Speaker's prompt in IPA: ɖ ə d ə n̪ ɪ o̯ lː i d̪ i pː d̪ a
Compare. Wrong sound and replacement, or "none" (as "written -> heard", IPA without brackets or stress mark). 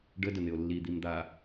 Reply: pː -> m